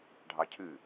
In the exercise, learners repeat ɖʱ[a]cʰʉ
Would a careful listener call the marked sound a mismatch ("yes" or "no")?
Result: yes